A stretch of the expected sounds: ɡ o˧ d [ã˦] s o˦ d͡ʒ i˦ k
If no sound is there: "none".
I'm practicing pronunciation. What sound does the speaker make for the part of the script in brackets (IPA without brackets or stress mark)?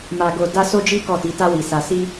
a˦